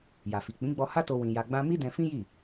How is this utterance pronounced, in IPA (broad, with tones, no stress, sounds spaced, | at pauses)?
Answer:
j a˨ f i˨ k͡p ĩ˨˦ ɡ͡b ɔ˧ h a˦ t o˧ w ĩ˧ j a˧ ɡ͡b ã˦ m i˦ d ɛ̃˧ f ĩ˦ j i˦˨